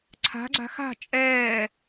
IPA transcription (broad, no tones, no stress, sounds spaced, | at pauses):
ǀʰ a̤ ɡ͡ǀ a̤ x a̤ t͡ʃʼ ɛː